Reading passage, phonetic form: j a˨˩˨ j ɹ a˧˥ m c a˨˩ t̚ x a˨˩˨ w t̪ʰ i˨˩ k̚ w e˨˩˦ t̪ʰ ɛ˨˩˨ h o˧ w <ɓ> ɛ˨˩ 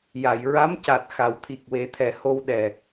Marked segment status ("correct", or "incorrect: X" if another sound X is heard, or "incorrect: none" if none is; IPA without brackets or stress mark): incorrect: ɗ